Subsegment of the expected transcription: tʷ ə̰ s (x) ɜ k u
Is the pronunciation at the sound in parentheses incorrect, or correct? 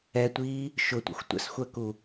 incorrect